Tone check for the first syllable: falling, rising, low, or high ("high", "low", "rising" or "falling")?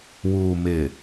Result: low